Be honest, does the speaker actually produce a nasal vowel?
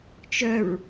no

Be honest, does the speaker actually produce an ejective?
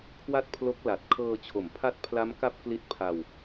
no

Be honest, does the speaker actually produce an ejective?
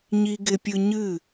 no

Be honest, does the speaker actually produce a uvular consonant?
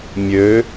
no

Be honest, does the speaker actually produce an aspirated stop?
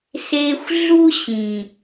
no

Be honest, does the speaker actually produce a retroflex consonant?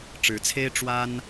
yes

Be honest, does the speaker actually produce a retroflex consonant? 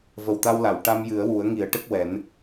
yes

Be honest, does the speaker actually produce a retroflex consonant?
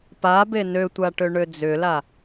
yes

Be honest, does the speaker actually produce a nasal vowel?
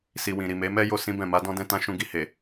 yes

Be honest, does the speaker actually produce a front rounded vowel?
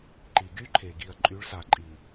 yes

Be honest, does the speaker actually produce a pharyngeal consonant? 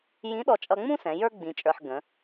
yes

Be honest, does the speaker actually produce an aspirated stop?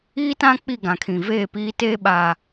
yes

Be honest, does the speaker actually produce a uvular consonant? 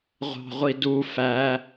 yes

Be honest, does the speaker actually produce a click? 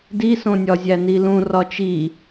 no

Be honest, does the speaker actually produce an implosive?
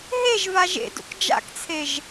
no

